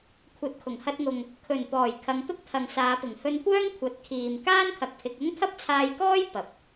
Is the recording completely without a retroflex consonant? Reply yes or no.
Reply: yes